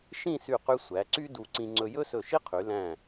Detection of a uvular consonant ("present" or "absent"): present